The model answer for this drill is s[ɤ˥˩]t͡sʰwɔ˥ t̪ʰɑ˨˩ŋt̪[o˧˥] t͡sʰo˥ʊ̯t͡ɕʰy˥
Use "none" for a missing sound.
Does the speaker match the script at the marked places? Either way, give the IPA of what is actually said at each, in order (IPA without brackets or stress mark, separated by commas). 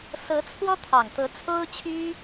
ɤ˧˥, ɤ˧˥